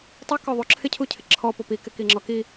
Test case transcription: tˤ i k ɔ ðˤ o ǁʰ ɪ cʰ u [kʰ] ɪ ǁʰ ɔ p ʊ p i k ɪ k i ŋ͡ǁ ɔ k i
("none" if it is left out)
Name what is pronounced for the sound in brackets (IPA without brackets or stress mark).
cʰ